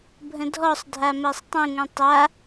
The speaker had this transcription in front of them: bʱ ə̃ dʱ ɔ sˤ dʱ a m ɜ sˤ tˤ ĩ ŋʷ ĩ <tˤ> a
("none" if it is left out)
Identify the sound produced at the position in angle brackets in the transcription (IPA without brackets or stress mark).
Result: tˤ